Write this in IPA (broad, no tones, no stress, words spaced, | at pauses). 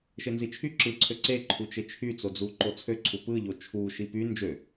ʃenzit͡ʃʰy ǁɯǀʰø ǀeǃʰut͡ʃe t͡ʃʰyt͡sod͡zu ǃot͡sʰøǀʰu pɯʎo t͡ʃʰu ʃipy nd͡ʒø